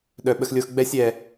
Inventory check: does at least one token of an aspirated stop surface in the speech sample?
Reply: no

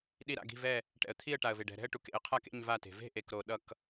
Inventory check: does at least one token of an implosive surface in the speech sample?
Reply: yes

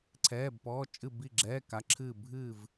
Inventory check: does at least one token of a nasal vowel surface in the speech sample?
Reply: no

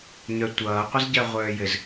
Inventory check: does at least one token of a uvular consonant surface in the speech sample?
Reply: yes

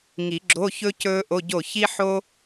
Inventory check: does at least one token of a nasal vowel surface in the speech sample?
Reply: no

